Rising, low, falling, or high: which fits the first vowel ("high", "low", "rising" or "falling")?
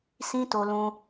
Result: high